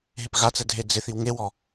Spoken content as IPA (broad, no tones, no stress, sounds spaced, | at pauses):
ɦ e p ɣ a t͡s ɛ dʱ e d͡z ɪ θ i w ŋ e w ɔ